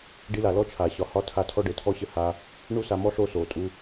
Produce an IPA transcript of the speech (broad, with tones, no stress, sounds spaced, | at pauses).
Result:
ɖ i˧ l a˨ l ɔ˦ t͡ʃʰ a˨ ɕ ɒ˨ h ɒ˦ tʰ a˦ tʰ ɔ˦ ɖ ɘ˨ tʰ ɔ˦ ɕ ɘ˦ h a˦ | ɳ u˦ s a˧ m ɔ˦ ɬ o˦˨ s o˨ tʼ u˧